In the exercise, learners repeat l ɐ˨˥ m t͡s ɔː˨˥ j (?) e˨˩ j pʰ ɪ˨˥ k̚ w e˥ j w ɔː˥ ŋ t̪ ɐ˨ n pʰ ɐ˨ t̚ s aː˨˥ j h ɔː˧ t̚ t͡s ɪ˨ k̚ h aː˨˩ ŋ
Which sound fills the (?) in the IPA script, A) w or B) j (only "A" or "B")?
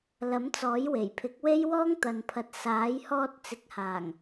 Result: A